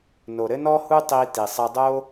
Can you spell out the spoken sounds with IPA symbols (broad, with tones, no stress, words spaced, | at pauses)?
no˩ɾɘ˥nɔ˥hu˥ tˤi˧ ti˩sˤɘ˧dˤo˥